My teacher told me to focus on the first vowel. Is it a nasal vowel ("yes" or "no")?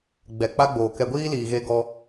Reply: no